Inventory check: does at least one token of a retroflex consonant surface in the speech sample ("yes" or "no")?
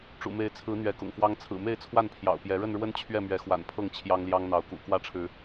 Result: yes